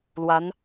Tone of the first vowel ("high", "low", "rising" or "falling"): rising